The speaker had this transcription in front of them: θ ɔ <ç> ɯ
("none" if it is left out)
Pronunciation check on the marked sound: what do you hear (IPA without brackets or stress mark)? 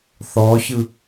ç